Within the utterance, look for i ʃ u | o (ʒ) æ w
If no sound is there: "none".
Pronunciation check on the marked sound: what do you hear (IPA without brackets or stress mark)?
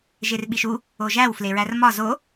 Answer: ʒ